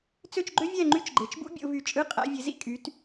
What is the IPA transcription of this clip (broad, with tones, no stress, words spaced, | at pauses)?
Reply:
t͡sø˥˨t͡ʃɡ͡ǃø˥vʲæ˥˨ ŋ͡ǃy˥t͡ʃɡ͡ǃe˨˦t͡ʃbṵ˥ bʲo̰˨˦vy˧˩t͡ʃʼɯ˧˥˧ qʼæ̰˨˦ vʲe˨˦zḭ˥˨kʼy˨˦t